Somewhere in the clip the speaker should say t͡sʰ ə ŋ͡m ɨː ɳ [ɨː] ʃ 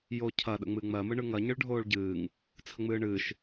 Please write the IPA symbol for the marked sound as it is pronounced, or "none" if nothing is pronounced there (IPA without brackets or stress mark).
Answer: ɨː